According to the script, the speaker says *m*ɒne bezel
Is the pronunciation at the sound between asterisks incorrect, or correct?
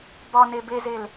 incorrect